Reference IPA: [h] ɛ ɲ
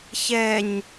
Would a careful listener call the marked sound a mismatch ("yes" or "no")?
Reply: yes